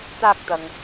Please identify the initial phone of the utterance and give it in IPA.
t̪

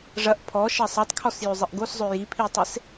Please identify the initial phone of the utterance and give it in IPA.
ʐ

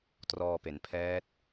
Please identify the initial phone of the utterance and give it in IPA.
t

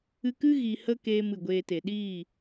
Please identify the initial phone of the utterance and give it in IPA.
ɨ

